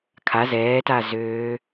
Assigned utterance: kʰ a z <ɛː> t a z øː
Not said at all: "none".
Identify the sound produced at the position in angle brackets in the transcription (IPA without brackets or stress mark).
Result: ɛː